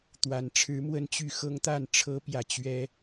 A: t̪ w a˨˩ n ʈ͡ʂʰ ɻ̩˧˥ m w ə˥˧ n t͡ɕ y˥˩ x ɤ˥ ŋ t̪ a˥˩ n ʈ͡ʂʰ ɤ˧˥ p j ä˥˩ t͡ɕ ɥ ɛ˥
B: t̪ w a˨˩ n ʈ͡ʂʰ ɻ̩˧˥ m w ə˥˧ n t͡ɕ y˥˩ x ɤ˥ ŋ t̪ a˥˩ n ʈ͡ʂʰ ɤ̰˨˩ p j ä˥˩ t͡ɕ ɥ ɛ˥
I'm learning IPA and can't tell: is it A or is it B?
A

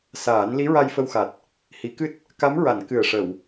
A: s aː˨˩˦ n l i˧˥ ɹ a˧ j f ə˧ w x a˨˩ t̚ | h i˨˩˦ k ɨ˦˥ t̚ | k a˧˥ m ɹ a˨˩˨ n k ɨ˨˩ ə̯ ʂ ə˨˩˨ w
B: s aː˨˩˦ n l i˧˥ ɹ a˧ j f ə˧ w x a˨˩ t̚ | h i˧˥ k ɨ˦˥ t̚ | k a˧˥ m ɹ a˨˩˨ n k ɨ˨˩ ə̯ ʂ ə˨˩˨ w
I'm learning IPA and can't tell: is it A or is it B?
A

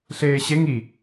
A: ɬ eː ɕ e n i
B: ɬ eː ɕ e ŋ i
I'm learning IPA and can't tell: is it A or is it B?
B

